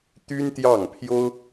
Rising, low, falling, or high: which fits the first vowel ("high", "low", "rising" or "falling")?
high